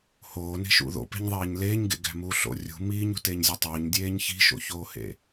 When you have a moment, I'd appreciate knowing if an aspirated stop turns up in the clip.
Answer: no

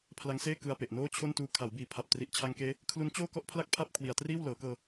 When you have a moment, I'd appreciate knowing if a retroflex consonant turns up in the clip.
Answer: no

